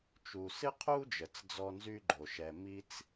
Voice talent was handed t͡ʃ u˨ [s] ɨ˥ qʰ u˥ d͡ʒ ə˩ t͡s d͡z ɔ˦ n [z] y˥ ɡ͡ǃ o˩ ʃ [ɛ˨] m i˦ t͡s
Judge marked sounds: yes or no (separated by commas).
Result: yes, yes, yes